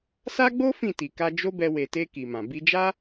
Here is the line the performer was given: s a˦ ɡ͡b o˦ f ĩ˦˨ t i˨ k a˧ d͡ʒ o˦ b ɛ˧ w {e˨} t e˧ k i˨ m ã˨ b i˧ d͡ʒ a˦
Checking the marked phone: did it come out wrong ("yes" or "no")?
no